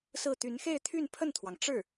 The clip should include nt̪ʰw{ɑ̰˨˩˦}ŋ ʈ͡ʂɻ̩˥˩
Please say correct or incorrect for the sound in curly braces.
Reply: incorrect